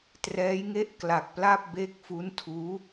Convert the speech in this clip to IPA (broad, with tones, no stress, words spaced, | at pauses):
trɛː˦˥jŋe˥˩ʔ kla˨˩k̚pla˥˩p̚be˦˥k̚ fu˦˥ntʰuː˦˥